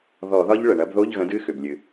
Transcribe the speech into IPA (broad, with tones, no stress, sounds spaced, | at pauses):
ð ɔ˧˩˧ ð ɒ˦˥ ʎ ɭ ə˩ ɳ ɐ˨˥ b ð o˧˥˧ ʎ ɣ ə̃˨˥ d ɨ˧˥˧ x ʏ˩ b lʲ ɨ˩